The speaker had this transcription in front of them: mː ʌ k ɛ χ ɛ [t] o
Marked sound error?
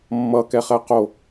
yes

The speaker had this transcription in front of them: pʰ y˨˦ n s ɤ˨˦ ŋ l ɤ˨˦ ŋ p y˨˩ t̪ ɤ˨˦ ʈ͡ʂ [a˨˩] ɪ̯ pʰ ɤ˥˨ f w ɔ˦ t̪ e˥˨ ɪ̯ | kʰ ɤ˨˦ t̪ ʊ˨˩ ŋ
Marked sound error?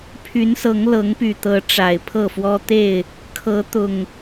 no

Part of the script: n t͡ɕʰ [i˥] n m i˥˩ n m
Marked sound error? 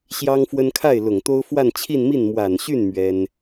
yes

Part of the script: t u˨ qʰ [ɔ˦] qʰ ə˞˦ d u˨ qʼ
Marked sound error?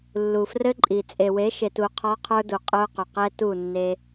no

